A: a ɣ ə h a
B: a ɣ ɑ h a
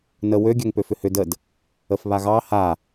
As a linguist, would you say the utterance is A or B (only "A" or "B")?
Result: B